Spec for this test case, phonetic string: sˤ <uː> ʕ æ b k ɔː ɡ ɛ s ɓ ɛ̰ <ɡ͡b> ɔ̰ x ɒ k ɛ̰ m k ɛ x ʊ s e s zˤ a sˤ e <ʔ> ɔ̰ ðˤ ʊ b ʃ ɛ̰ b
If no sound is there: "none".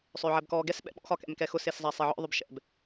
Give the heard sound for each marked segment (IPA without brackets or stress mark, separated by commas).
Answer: ʏː, ɓ, ʕ